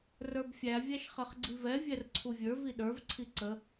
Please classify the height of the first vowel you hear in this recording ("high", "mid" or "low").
mid